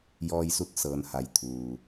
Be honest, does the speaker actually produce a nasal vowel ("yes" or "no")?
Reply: no